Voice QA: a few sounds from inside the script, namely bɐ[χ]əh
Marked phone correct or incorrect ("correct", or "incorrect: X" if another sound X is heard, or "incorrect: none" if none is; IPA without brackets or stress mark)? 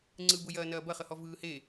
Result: correct